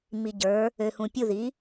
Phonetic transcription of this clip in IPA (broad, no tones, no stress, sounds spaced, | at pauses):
m i ɟ ə˞ | ø h ũ pʲ u ð i